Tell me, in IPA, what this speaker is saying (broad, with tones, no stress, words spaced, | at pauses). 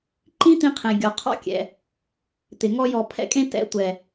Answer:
ǃĩ˦t̪ĩ˧qʰẽ˨ ɡʲɔ˨qʰɔ̰˦kʲɛ̰˨ | t̪ɪ˨ ŋɔ˦jɔ˧ pʰɛ̰˧kʼẽ˧ tɛ̰˨˦tʷɛ˨